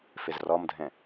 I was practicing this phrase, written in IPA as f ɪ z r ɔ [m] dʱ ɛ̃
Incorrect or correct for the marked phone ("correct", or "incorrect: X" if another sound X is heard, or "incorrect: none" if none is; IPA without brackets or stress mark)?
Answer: correct